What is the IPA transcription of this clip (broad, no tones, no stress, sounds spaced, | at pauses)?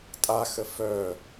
tʼ a x ə f œ